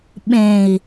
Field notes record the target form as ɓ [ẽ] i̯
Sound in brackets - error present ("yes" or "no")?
no